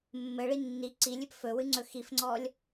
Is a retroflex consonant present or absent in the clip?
present